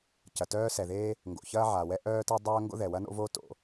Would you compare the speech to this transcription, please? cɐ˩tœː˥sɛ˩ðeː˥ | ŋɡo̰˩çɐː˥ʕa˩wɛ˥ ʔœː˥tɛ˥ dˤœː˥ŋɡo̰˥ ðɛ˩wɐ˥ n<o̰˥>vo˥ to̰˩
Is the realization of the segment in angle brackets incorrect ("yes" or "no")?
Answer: no